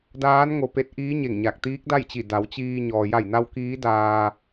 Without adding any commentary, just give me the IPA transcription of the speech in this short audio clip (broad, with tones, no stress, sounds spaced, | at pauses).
d aː˧˥ n ŋ o˧ p e˧˥ t̚ ʔ iː˧˥ ɲ e˧˩ ŋ ɲ a˧˩ k̚ t̪ iː˧˥ k̚ d a˥˨ j t͡ɕ i˧˩ d a˩˧ w t͡ɕ iː˧ ɲ ɔː˩ j a˧˩ j n a˧ w k iː˧˥ d aː˧